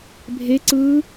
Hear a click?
yes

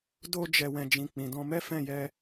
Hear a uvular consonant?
no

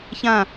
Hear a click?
no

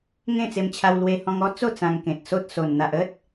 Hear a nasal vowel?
yes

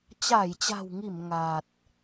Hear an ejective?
no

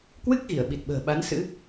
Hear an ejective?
no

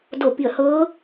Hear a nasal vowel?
no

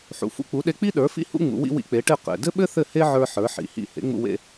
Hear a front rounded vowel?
no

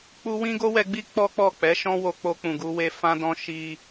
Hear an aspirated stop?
no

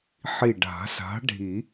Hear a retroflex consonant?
yes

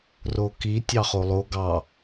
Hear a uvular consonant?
yes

